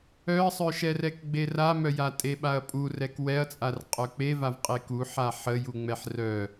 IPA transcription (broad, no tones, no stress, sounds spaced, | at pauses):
œ ɐ̯ sˤ œ ʃ ɛ r ɛ k ɡ͡b e r a m œ j a tʼ e ɓ a ɐ̯ pʼ u r ɛ k w ɛ ɐ̯ t͡sʼ a r qʼ œ k͡p e v a v qʼ e k u ħ a ħ ə j u ŋ͡m ɛ ħ r œ